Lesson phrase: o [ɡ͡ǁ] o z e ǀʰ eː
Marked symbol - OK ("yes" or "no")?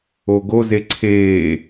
no